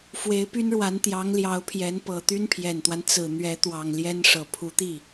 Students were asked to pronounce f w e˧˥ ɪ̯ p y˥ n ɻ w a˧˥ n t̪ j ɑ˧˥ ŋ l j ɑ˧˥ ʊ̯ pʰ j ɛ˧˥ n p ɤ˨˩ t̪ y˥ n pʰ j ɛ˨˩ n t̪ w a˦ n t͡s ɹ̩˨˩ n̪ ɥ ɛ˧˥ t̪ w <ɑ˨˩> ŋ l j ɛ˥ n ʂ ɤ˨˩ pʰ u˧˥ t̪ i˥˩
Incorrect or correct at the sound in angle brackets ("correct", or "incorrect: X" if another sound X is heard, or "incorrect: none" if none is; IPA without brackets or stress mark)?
correct